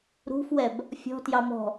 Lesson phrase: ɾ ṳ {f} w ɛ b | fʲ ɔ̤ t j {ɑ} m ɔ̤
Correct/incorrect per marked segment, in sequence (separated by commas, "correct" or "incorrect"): correct, correct